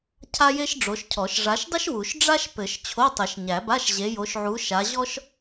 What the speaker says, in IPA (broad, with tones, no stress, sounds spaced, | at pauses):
cʰ a˥ j e˥ ʃ ɖ͡ʐ o˨˦ ʃ cʰ ɔ˨˩˦ ʃ ʐ a˨˦ ʃ dˤ ɘ˥ ʃ w u˨˩˦ ʃ ɖ͡ʐ a˥ ʃ p ɘ˨˩˦ ʃ t͡ɕʰ o˧˥˧ tˤ ɘ˨˩˦ ʃ ɲ æ˨˩˦ b a˧˥˧ ʃ ʑ e˨˦ j o˨˦ ʃ ʕ u˨˦ ʃ a˨˦ ʑ ɔ˥ ʃ